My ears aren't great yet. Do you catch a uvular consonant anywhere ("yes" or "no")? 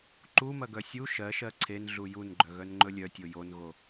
no